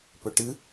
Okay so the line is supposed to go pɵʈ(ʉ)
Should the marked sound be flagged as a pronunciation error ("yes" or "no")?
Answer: yes